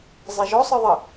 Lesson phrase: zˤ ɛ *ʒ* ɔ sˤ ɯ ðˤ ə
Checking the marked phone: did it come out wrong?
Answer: no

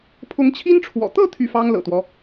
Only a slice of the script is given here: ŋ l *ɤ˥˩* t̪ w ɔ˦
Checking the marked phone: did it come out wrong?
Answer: yes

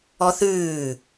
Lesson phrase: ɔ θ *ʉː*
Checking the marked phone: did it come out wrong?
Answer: no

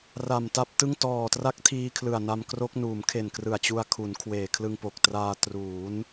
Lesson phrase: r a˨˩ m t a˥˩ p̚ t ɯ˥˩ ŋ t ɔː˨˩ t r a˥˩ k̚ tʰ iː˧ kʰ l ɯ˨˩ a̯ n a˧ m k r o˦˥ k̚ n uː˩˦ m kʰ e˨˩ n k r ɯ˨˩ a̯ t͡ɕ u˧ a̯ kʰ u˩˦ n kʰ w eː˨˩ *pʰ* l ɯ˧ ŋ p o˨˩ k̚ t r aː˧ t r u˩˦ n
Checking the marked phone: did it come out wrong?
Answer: yes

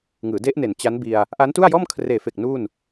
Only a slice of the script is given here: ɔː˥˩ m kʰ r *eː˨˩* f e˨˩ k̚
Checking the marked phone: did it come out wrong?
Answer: no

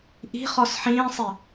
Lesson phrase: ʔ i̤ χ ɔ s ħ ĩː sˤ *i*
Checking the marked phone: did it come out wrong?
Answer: no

